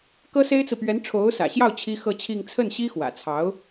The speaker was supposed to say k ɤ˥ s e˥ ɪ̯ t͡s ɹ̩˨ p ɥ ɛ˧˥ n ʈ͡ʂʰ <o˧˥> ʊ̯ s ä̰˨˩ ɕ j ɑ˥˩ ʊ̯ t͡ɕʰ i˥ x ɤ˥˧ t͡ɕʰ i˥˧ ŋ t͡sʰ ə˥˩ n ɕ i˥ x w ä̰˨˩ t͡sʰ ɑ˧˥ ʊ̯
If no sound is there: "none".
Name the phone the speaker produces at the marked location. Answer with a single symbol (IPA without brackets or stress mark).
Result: o˧˥